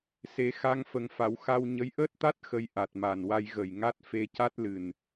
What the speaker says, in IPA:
s e˨˩˦ x a˧ ŋ f ə˨˩˦ ŋ f a˨˩˨ w x a˧ w ɲ ə˧˥ j ʔ əː˦˥ t̚ t̪ a˦˥ t̚ x ə˧ j ʔ a˨˩ t̚ m a˨˩ n w a˧ j ɣ ə˨˩ j ŋ a˦˥ t̚ f e˧ c a˦˥ t̚ l ɨ˨˩ n

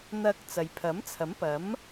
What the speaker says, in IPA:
n̪ ɐ˧ k̚ t͡s ɐ˨ j pʰ ɐ˨˥ m t͡sʰ ɐ˨˥ m p ɐ˨˥ m

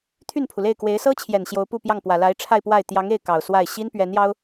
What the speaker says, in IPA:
t̪ʰ y˥˩ n pʰ u˩ l e˥˩ ɪ̯ k w e˧˥ ɪ̯ s ɤ˥ t͡ɕʰ j ɛ˨˩ n ɕ j o˧˥ ʊ̯ p u˥˧ p j ɑ˥˩ ŋ p w ä˨˩ l a˧˥ ɪ̯ ʈ͡ʂʰ a˥˧ ɪ̯ p w a˥˩ ɪ̯ t̪ j ɑ˧˥ ŋ e˥˩ ɪ̯ k ɑ˨˩ ʊ̯ s w a˥˩ ɪ̯ ɕ i˥ n p ɥ ɛ˧˥ n j ɑ˥ ʊ̯

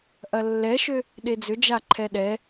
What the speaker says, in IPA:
ʔ ɐ lː ɛ ʃ ø | ɗ e d͡z ʏ d͡ʒ a ǃʰ ɛ ɗ ɛ

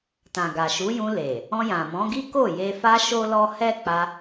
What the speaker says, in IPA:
t ã˨ ɡ a˨ ʃ u˨˦ j ũ˧ l e˨ | ɔ̃˧ j ã˨ m ɔ̃˨˦ ɡ i˦ k o˦˨ j e˧ f a˧ ʃ o˦ l ɔ˦ h ɛ˦ k͡p a˧

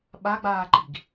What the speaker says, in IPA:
ɓ a ɡ͡b aː ǃ i̤ ɡ

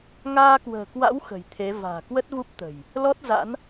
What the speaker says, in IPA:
ŋ aː˧ k w ə̤ː˨˩ k w a̰˧˥ w x ə̤˨˩ j t̪ʰ e˨˦ v a̤ː˨˩ k w ə˦˥ t̚ v u˦˥ p̚ t̪ ə̤˨˩ j | l ɔ˦˥ t̚ z a̰˧˥ n

